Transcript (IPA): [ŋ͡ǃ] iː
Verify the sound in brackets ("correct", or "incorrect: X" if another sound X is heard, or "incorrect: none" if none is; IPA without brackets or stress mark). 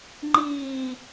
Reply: correct